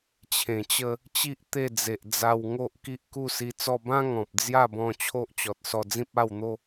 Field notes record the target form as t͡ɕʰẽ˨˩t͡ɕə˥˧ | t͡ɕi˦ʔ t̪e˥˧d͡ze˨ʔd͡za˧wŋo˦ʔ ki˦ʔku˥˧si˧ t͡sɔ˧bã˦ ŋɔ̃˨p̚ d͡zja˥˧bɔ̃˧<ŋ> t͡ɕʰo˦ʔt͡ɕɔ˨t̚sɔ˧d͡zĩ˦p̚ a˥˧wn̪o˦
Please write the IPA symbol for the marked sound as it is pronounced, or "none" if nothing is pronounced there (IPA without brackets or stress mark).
none